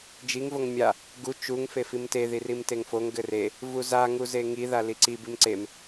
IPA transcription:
d͡ʒ i ŋ v o ŋ mʲ a | ɡ u t͡ʃ u ŋ f e f i m t e ð i r i m t e ŋ f o ŋ ɡ ɘ r e | v u z a ŋ u z e ŋ i ð a l i ǀ i b i m ǀ e m

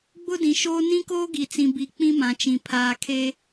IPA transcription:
ɡ͡b ʊ˦ d ĩ˨ ʃ oː˦ n ĩ˦ k oː˦ ɡ i˨ t͡s ĩ˨ b i˨ k͡p ĩ˦ m ã˨ t͡ʃ ĩ˨ pʰ aː˨ kʰ e˦

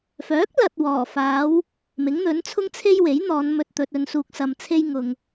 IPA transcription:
f œː˨˥ k̚ l ɐ˨ t̚ w ɔː˨˩ f aː˨˧ w | m ɪ˨˥ ŋ n̪ ɵ˨˥ n t͡sʰ ʊ˥ ŋ t͡sʰ e˥ j w e˨˥ j n̪ ɔː˨˧ n m ɵ˧ t̚ t̪ ɵ˨ t̚ ɵ˨˧ n s uː˧ k̚ s ɐ˧ m t͡sʰ e˥ j ŋ ʊ˨ ŋ

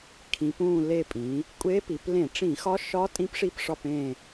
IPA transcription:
kʰ ĩ˩˧ p ũ˧˩ l e˧˩ pʼ ĩ˩˧ | kʷʼ e˧˥ p i˩˧ p l ẽ˧˩˧ ʈ͡ʂ ĩ˧˩˧ x ɒ˧˥ ʃ ɒ˧˥ tʼ ĩ˧˥ p ʂ i˧˩ p ʂ ɒ˧˩ p ẽ˧˩

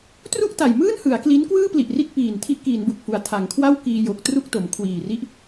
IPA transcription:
t r u˥˩ ʔ t a˨˩ j m ɯː˥˩ n h ɯ˩˦ a̯ k l i˦˥ n k w ɯː˥˩ p l i˨˩ ʔ r i˦˥ t̚ p iː˨˩ n tʰ i˦˥ ʔ k iː˩˦ n b u˨˩ k̚ f u˩˦ a̯ tʰ a˩˦ ŋ kʰ w a˥˩ w k iː˧ j o˨˩ k̚ t r u˥˩ k̚ t o˩˦ m kʰ w iː˨˩ r i˦˥ ʔ

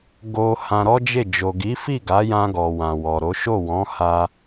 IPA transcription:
ɡ o˧ h ã˧ ɾ ɔ˦ d͡ʒ e˦˨ d͡ʒ o˨ ɡ i˨˦ f i˦˨ ɡ a˨˦ j ã˧ ɡ ɔ˨ w ã˨ w ɔ˨ ɾ o˨˦ ʃ o˦˨ w ɔ̃˨˦ h a˧

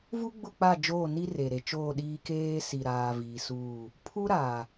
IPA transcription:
v u˦ ɡ͡b ʊ˦˨ k͡p a˦˨ d͡ʒ oː˦˨ n i˦ r e˨ ɾ e˨ t͡ʃ oː˦˨ ɗ iː˦ k eː˦ s i˨ ɾ aː˨ v iː˨ s uː˦˨ | pʰ u˦ ɾ aː˨

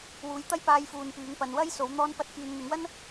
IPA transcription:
w uː˨˥ j t̪ ɐ˥ j p aː˥ j f uː˧ n p yː˨˥ ŋ p ɐ˨ n w ɐ˥ j s o˨˥ w n̪ ɔː˥ n p ɐ˥ t̚ k yː˨ n n̪ ɪ˨˥ ŋ w ɐ˥ n

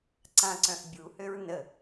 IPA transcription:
ǀ ã ǀ œ̃ ʔ bʲ u h ø ɹ n ə

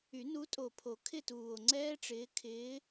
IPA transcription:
y˨˩˦ n u˨˦ tʼ o˨˩ pʰ o˨˩˦ kʰ ɪ˥˧ t uː˨˩ o̯ ŋ͡ǀ ɛː˥ ʈ͡ʂ ɪː˨˦ kʰ ɪː˨˦

